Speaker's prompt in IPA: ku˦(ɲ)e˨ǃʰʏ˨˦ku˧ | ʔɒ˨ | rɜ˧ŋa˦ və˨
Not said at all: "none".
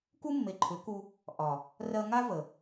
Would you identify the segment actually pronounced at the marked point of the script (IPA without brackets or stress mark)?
mː